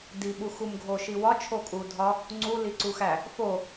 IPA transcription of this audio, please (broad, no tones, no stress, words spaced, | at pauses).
di ɓuxumɡʱo ʃiwɒ t͡ʃʰokʼudʱɒ | ŋ͡ǀu liǀuxæ | fo